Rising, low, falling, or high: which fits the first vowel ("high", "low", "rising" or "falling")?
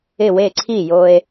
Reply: falling